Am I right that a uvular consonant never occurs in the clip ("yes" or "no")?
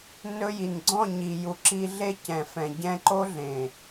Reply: yes